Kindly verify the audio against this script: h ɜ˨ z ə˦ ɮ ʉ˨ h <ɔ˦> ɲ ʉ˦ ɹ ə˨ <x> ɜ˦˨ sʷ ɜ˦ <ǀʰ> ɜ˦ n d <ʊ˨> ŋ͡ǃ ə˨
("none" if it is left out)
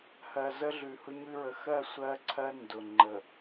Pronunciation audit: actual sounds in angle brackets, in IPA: ʊ˦, x, ǀʰ, ʊ˨

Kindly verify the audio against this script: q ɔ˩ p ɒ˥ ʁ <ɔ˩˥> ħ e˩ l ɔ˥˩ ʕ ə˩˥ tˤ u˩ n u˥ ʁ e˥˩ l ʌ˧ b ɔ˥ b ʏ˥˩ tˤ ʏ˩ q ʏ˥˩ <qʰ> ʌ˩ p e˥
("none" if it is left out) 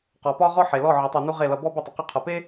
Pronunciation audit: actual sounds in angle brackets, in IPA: ɔ˥, qʰ

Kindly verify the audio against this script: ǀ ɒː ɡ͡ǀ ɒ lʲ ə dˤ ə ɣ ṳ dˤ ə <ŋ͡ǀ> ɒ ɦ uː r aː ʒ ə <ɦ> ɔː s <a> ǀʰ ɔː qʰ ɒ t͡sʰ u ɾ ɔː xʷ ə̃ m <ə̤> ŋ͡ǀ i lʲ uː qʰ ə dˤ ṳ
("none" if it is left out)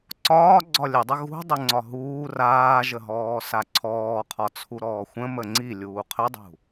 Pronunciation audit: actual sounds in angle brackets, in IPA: ŋ͡ǀ, ɦ, a, ə

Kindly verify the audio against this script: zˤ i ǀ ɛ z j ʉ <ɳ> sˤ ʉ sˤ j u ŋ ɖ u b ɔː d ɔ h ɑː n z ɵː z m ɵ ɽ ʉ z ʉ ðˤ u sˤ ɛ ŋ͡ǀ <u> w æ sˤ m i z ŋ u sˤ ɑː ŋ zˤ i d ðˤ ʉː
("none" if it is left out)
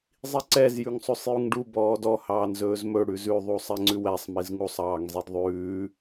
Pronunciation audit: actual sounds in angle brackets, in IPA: ŋ, ʉ

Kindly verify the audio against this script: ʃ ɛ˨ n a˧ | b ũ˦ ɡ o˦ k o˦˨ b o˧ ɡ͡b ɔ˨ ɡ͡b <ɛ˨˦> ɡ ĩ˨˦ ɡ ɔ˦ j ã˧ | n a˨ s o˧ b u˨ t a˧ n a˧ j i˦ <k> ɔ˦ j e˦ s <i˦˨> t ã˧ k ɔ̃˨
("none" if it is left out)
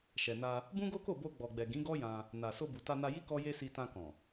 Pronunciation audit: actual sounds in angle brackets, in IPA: ɛ˨, k, i˧

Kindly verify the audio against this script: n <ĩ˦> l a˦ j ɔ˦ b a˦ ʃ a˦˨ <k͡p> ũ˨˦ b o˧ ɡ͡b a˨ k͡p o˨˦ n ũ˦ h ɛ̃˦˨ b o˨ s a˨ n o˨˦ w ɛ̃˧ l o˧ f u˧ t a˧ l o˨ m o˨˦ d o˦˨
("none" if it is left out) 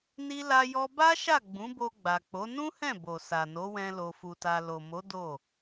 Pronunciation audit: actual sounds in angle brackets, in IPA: i˦, ɡ͡b

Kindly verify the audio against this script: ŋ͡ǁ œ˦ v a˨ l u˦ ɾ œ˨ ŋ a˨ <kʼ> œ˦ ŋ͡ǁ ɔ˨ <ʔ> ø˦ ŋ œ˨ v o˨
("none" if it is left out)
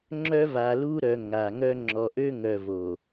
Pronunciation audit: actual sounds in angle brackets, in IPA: ŋ, ʔ

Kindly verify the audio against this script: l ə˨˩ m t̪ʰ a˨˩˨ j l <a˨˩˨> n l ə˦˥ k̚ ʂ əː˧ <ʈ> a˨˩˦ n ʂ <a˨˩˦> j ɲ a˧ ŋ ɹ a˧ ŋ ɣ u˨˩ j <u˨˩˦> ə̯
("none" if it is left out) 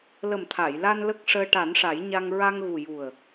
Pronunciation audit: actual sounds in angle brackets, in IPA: a˧, ʈ, a˨˩˦, u˨˩

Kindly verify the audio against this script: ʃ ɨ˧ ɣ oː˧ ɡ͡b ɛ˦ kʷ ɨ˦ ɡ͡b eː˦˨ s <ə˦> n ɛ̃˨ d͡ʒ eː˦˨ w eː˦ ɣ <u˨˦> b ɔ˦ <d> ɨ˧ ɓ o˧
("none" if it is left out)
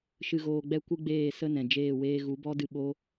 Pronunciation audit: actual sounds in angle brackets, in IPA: ə˦, u˨˦, d

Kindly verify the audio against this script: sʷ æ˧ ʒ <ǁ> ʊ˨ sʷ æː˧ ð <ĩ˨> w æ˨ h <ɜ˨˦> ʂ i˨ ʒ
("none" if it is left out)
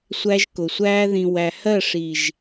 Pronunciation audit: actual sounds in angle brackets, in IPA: k, ĩ˨, ɜ˦˨

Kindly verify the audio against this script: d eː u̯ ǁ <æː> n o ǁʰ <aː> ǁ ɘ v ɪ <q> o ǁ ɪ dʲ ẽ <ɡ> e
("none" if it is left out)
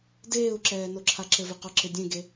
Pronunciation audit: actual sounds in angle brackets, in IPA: ɛː, a, q, ɡ

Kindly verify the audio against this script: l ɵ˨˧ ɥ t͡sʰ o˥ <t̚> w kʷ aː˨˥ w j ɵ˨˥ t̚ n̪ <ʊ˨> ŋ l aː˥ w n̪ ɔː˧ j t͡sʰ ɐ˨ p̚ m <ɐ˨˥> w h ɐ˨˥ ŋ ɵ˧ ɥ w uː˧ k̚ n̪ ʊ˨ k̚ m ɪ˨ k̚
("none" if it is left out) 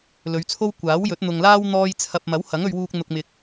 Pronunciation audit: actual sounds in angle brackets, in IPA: none, ʊ˨, ɐ˨˥

